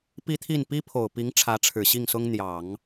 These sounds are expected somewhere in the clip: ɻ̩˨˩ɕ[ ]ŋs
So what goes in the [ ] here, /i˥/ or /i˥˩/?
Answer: i˥˩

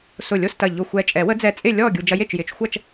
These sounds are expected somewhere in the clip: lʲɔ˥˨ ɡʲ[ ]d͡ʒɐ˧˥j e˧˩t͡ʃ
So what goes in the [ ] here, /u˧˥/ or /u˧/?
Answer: u˧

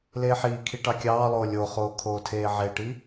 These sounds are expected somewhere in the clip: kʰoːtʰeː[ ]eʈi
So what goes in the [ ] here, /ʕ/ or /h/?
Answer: ʕ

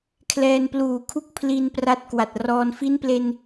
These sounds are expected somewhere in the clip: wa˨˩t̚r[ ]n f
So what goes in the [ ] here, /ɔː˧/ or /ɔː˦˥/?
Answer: ɔː˧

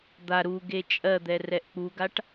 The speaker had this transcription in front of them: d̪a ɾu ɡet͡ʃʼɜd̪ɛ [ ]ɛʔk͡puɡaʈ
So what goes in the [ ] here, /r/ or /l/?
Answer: r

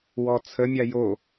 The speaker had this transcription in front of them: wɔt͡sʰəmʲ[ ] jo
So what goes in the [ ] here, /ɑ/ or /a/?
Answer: a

